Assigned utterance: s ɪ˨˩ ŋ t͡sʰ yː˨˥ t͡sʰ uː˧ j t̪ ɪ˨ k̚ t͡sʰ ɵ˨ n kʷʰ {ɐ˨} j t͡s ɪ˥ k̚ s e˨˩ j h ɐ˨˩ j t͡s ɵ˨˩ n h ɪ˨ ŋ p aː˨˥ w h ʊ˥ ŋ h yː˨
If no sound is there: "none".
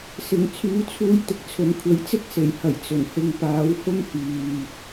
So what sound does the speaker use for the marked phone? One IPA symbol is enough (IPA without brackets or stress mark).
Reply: ɐ˨˥